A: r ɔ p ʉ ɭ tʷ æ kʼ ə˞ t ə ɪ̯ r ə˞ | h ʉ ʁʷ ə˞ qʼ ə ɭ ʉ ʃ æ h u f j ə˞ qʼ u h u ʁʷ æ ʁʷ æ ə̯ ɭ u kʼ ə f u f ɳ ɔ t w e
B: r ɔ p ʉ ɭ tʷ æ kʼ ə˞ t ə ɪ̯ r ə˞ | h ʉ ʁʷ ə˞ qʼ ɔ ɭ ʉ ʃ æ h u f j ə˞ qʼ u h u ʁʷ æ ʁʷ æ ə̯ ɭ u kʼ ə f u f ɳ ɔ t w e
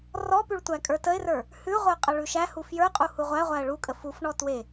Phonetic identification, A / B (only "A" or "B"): A